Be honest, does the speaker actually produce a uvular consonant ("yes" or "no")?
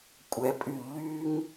no